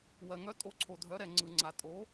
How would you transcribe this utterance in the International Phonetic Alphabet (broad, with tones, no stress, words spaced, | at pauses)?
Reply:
wɜ˨ŋœ˨˥ tʼo˨˥ǀʰo˨ dʱœ˨˥ɾɛ˨ ŋ͡ǀɯ˨ŋ͡ǀa˨ tʼo˨˥